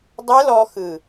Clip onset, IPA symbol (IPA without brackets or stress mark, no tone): dˤ